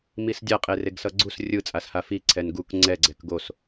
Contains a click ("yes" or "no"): yes